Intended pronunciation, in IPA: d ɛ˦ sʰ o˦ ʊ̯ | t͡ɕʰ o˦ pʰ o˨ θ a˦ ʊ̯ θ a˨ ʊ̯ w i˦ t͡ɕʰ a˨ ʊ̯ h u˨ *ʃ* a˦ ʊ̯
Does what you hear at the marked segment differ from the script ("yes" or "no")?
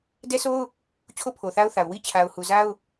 yes